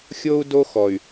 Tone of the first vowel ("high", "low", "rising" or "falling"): high